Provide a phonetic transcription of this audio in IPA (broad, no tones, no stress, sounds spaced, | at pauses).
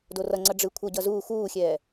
d o r ʌ ŋ͡ǀ ʌ ɖ͡ʐ ɯ kʷʰ ʌ ɟ ʌ z uː x uː xʲ ɛː